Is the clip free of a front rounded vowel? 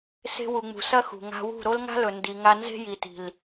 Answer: yes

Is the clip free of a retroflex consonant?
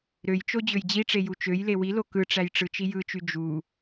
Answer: no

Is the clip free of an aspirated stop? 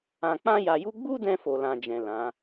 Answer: yes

